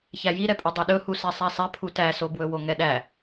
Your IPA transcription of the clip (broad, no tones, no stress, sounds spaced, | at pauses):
ç æ j i ɾ ɛ pʼ ɵ dˤ ɵ ɗ ɵ h u s ɛ sˤ æ sˤ ɛ pʰ u t æ s o b w ɵ w o ŋ ɛ ɗ æ